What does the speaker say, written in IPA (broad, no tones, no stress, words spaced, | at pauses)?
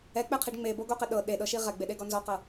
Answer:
ɛk͡pɛqʰiɖ ŋ͡meboɡoqɛ ɗɤ ɗeɗɤʃi ʁɛɡ͡beɗeɡɔ nzɔqɤ